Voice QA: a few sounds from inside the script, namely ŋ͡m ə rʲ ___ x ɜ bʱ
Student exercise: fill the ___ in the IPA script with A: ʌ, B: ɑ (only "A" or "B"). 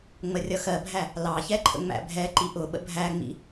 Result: A